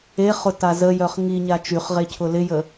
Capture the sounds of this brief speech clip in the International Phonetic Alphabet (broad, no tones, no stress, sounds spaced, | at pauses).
e χ ʊ t a z ə j œ χ ŋ i ɲ a t͡ʃ y χ ʁ e cʰ ʊ l ɪ j ə